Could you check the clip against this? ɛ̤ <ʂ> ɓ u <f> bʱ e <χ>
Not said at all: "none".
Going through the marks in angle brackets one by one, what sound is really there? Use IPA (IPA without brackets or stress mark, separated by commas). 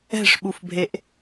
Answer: ʂ, f, ʔ